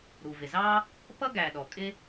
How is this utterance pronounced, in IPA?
ɾ u˩ v ɪ˩ z ɑ˥ | p ʌ˥ ɡ æ˩ ɗ ɔ˩ kʼ ɪ˥

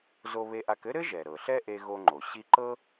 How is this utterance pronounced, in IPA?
z o˧ β e˧ ʔ a˧ k ɘ˥ ɾ ɘ˥ ʒ ɛ˩ ɾ ɤ˩ ɬ ɛ˥ ʔ e˧ ɣ o˧ ŋ͡ǃ o˩ ɕ i˧ ǃ ɤ˥

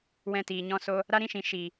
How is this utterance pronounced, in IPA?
w ɛ̃˧ t iː˨ ɲ ɔ̃˧ s o˧ | ɾ a˦ ɾ ĩ˦ ʃ ĩ˨ ʃ i˨

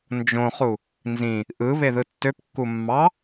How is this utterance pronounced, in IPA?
n d͡ʒ õ χ u | n z ĩ | ʔ ɯ β e ð ɯ tː ø p kː u mː ɑ

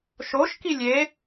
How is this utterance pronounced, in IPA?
ʃ o ʃ k i lʲ e

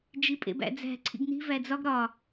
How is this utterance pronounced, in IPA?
d͡ʒ i pʼ ḛ b æ̰ d͡z æ̤ ǀʰ ḭ ɡ n i̤ v æ d͡z ɒ ɡ ɾ ɒ

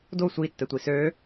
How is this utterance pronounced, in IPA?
d o sʷ i tː ɛ tʷ i s ø

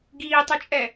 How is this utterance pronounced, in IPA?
ɡ iː tˤ u t͡ʃʼ ɛ

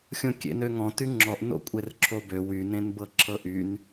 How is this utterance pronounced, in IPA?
xʲ õ kʲ ḛ n ø ŋ ɔ̃ t y ŋ͡ǁ ɔ ʔ n o̰ kʷʼ e r ǁʰ o b ø w y n ẽ n b ɤ ǁʰ ɤ ʔ y n

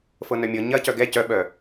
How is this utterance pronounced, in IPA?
f ɤ n œ mʲ ɤ ɲ ɐ c œ ɡ ɛ c œ ɓ œ

